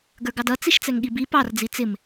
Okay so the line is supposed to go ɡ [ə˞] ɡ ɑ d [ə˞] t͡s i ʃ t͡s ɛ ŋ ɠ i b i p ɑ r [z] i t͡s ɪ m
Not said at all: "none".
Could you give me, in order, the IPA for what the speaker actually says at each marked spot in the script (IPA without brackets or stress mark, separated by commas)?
ə˞, ʌ, d͡z